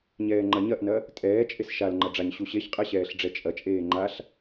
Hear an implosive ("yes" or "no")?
no